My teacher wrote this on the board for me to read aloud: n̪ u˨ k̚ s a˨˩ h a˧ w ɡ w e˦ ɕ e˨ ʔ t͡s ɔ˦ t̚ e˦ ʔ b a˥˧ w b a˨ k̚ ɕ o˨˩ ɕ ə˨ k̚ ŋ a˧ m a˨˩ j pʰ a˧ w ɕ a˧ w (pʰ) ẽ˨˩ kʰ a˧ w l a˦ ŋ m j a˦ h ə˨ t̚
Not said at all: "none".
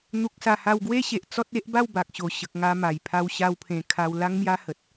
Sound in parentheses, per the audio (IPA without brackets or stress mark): pʰ